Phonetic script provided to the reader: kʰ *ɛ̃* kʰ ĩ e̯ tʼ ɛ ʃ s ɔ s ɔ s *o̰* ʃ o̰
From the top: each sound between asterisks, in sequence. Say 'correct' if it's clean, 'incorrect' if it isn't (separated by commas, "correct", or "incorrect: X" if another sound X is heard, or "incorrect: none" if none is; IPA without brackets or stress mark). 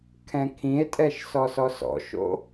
correct, incorrect: ɔ̰